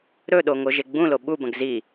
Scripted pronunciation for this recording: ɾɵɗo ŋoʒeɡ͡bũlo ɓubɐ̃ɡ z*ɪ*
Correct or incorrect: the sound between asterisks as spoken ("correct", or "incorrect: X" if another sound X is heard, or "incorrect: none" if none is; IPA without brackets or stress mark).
incorrect: i